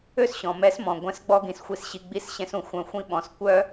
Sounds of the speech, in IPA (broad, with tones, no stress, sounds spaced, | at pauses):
ø˥ s ɕ ɔ̃˩ m ɛ˧˥ s m ɔ̃˩ ɡʷ ɛ̃˧˥ s ɡ͡b ɔ˥ ɡ ĩ˩ s xʷ i˧ s ɕ i˧ ɡ͡b i˧˥ s ɕ ɛ̃˧ s ũ˩ xʷ œ̃˧ xʷ ĩ˥ ɓ ɔ̃˩˧ s kʷ œ˥